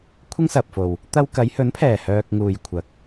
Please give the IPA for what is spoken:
kʷʰ ɪ˥ ŋ s ɐ˨ p̚ f o˨ w | t̪ ɐ˧ w k ɐ˨˧ j h ɵ˨˥ n pʰ ɛː˨˩ h œː˨ k̚ ŋ uː˨ j kʷʰ ɐ˨˥ k̚

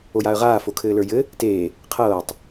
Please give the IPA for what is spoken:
o j a ə̯ ʁ aː f o kʰ ɘː l ə˞ j ɘ | t eː | qʰ ɤː tˤ

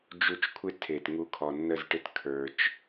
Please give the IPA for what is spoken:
d͡ʒ u˧ t͡ʃ kʷʰ ɪ˦ tʰ e˨ t ŋ u˧ kʰ ɔ˨ nː ə˦˨ z ʈ ɪ˦ t kʰ ə˞˦ t͡ʃ

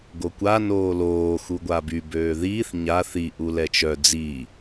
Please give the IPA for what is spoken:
ɡ o kʷ a n oː l oː x u ɡʷ a b y b øː ð iː θ ɲ a θ i ʔ u l ɛ t͡ʃ œ d͡z i

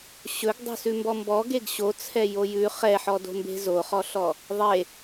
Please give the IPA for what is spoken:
ɕ ɵ ɡ dˤ o̤ s ʉ m b ɔ m b ɔ ɡ e ɡ ɕ o t͡sʰ ɛ j o j ʉ χ ɛ ħ ɔ d o̤ m b e̤ z o χ ɔ ɬ ɔ | ðˤ e

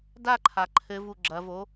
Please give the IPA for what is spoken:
d a ǃʰ a ǃʰ ɘ v u ɡ͡ǁ ɐ v o

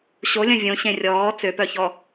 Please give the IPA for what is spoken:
ɕ o lʲ ɐ̃ vʲ õ ɕ ẽ rʲ ɔː t͡s ø p œ ç ɔ

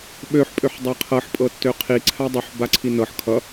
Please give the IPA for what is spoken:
ɓ ø ħ pʼ ø ħ dˤ a qʰ ɤ ħ pʼ ɤ tː ø qʰ i ǀʰ a dˤ u ħ b a ǀʰ i n ɤ ħ kʰ ʌ

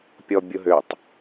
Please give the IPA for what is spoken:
pʲ ɔ bʲ ʊ ɦ ø tˤ

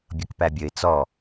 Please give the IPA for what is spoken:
bʲ ʌ k p æ bʲ ə ɪ̯ t͡s ɔ

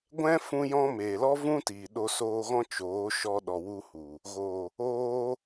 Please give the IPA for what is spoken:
ɡʷ ɛ̃˦ f ũ˧ j ɔ̃˧ m eː˨ l ɔ˦ v ũ˦ t iː˨ ɗ o˧ s oː˧ ɣ ɔ̃˦ t͡ʃ oː˨˦ ʃ ɔ˧ ɗ ɔ˨ w u˧ h u˨ | ɣ o˨ | oː˧

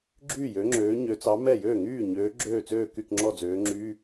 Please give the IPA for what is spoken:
ɡ͡ǁ yː˥˩ j ø˨˦ ŋ͡ǁ øː˨˦ ɲ ø˨˦ t͡s ɑ˨˦ m ɛ˥˩ j øː˥˩ ŋ yː˥˩ ɲ øː˨˦ ɡ͡ǁ øː˥˩ t͡s øː˥˩ k y˥˩ k ŋ͡ǁ ɔ˥˩ d͡z øː˨˦ ŋ͡ǁ yː˧˥˧

